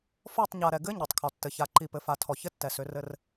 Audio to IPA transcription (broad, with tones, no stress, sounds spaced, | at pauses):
f ɔ˦˨ tˤ ɲ a˨ ɾ ɛ˨ ɡ ɘ˦ ɲ ɔ˨ tˤ kʰ ɔ˨ tː ɘ˨ ç a˨ ǃ i˨ p ɘ˨ f a˨ tʰ ɔ˨ ç ɘ˦ tː ɛ˨ s ʏ˨˦ r ɘ˦ r